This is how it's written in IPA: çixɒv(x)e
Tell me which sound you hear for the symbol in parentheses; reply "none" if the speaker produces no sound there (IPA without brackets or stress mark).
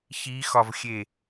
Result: xʲ